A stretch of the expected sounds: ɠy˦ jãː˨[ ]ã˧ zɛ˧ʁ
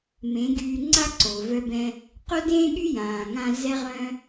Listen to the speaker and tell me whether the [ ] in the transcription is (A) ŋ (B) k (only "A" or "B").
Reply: A